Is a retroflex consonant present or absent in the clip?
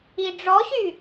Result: present